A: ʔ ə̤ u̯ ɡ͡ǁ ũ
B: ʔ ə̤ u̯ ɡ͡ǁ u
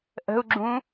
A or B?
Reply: A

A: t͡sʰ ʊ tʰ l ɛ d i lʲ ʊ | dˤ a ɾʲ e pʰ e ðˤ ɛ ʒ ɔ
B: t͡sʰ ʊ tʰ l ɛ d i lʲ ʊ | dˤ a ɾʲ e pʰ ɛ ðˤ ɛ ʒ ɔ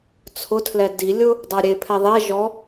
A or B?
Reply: B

